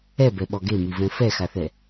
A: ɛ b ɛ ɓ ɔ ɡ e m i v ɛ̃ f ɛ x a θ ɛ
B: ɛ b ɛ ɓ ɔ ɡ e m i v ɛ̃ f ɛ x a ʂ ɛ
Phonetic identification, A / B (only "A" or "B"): A